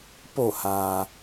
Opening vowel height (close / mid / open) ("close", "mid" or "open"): mid